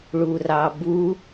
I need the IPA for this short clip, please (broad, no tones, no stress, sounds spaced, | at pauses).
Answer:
ɭ u r ɑ b u